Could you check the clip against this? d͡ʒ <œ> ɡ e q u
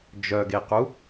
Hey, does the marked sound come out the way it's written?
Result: yes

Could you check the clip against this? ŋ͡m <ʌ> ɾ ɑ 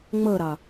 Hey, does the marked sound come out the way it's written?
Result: yes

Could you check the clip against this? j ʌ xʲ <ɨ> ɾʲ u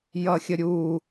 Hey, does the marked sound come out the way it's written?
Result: no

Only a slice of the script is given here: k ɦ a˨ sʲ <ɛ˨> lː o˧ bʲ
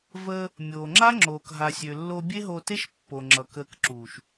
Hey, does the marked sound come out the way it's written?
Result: no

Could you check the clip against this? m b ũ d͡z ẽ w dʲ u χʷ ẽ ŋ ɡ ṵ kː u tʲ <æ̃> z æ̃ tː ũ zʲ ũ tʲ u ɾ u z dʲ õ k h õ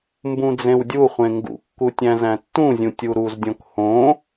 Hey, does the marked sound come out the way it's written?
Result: yes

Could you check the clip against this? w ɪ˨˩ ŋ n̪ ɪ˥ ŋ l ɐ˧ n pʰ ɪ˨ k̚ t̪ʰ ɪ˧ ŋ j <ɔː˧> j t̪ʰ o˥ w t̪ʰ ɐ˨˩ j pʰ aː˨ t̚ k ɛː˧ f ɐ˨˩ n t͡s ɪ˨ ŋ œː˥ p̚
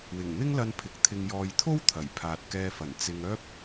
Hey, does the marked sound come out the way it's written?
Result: yes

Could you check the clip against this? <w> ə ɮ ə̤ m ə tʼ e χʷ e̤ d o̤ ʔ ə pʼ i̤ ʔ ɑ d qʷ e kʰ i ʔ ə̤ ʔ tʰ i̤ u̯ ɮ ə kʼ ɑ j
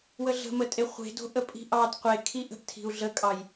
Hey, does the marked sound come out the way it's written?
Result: yes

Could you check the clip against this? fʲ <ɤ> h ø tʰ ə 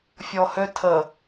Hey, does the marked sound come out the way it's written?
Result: no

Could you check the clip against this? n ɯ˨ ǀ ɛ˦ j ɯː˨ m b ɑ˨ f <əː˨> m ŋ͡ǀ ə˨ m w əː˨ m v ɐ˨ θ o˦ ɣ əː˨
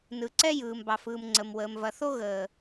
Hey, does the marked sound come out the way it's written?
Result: no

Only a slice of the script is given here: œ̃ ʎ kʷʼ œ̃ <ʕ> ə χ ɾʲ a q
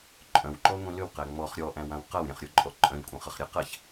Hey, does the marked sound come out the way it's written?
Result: no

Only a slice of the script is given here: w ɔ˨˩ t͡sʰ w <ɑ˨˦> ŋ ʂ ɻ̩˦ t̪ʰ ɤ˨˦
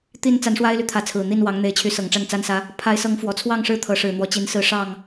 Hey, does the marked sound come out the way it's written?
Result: no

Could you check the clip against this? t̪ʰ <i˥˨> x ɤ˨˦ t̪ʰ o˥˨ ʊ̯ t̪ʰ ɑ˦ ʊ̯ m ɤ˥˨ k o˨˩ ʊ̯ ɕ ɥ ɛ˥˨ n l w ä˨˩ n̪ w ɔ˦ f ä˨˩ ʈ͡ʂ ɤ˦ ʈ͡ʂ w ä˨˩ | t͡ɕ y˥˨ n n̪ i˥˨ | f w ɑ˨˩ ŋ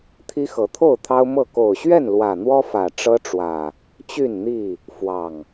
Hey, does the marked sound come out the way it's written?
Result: no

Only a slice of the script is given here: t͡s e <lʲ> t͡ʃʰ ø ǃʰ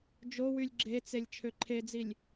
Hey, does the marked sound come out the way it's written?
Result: yes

